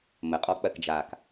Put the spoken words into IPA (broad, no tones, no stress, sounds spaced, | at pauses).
m ə qʼ ɔ k͡p ɜ k d͡ʒ aː k